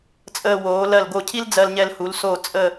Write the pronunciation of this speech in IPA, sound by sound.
t͡sʼ əː˧ w oː˩˧ l ɜ˧˩ l ɡ o˧˩ cʰ i˥ l d͡z ɜ˧ l ɲ ɛ˧ l h u˩˧ l s o˧˩ t͡sʼ ə˥˧

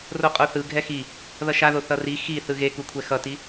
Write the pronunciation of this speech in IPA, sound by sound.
r o qʼ o θ ɯ ɡʱ ɛ x i | ð ʌ ʃ a ð o θ ʌ r i x i θ ɯ ɣ e k u kʷʰ ɛ x ʌ t i

